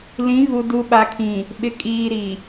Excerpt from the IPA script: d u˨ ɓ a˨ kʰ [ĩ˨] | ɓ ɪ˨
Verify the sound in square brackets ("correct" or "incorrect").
correct